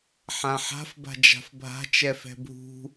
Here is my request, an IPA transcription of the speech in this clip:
ħ ã ħ a̤ f b a̤ d͡ʒ a̤ f bʱ a̤ t͡ʃ ɛ f ɛ̤ bʱ ṳ

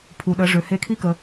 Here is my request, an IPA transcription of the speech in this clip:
pʰ u˩ ɗ ə˩˧ ʐ ø˩ h e˧˥ kʰ i˥ k ə˩˧

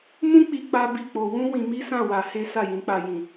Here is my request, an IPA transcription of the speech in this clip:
m ũ˦ k͡p i˧ k͡p a˦ b i˦˨ k͡p o˧ w ũ˦ w ĩ˧ m i˦ s ã˦˨ w a˧ h e˦ s a˦˨ j ĩ˨˦ k͡p a˧ j ĩ˨

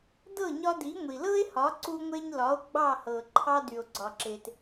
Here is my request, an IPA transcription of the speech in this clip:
d ɤ˥˩ ɲ ɒ˧ d i˩˥ ŋʷ i˩ l ɤ˥ e̯ h ɒ˩˥ ǀ u˧ ŋʷ e˧ ɲ l ɒ˩˥ o̯ ɡ͡b ɑ˥˩ h ɤ˩ ǃʰ ɑ˧ d y˩ o̯ ɡ͡ǀ ɒ˩ ǁ e˩ t

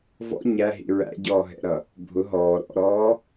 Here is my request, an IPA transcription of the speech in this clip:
v ɔ̰ ɲ æ ɦ ḭ ɹ æ̰ ɟ ɔː ɦ ɛ̰ ɾ ʌ | bʱ ʊ ɦ ɔː ɾ ɔ̰ ɾ ɔː

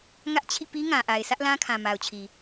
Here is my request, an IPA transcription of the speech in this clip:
ŋ ä˦ ʔ t͡ɕʰ ḭ˦˨ p i˦ ŋ ã˨ ʔ a˨ ɪ̯ s ä˦ ʔ l ã˦ kʰ ã˨ m a˨ ʊ̯ t͡ɕʰ i˨

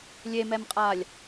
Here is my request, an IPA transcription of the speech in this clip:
lʲ e m ɛ m qʼ a lʲ

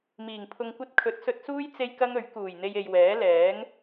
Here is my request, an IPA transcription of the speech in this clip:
m iː˨˩ ŋ pʰ ʊ˧ ŋ kʷ ɐ˥ t̚ kʰ ɵ˨˥ t̚ s ɵ˧ t̚ s uː˥ j t͡s e˥ j k ɐ˥ ŋ ɵ˨˥ ɥ k uː˨˩ j n̪ e˧ j e˨ j w ɛː˨˥ l ɛː˨˥ ŋ

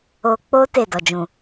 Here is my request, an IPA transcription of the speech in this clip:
o˧ k͡p o˦ t e˦˨ d ɔ˨ d͡ʒ ũ˨

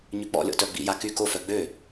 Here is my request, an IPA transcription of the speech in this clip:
ɲ y k͡p ɔ̰ lʲ ɔ̰ t œ ɡ͡b ḭ j a k y k o f œ ɡ͡b ø

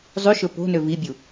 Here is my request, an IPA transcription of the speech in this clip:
zˤ y ʃ ɵ p o̤ n ø v i bʲ u

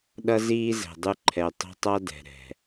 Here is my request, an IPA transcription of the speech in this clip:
ɗ ʌ˦ z iː˦ z ɛ̤˨ dˤ ʉ˦ ǃʰ ɛ˨ tˤ o̤˦ tˤ a˦ d ɛ̤˨ ɾ ɛ̤˨

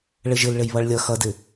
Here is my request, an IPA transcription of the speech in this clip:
ɭ ɘ ʒ ɘ l ɭ ɘ j β ʌ ɭ lʲ ʌ x ʌ d ɘ

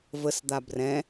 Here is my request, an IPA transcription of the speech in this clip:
v ə s d̪ a b r ɛ̃

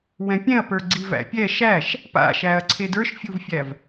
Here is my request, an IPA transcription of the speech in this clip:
w ɛ̃ pʲ ɛ̃ ɐ̯ p ə˞ ɡ͡ǀ i v æ̰ pʲ ɛ ʃ æ ʃ | p a̰ ʃ æ ɐ̯ ǀʰ e d ə˞ ʃ fʲ u v fʲ æ v

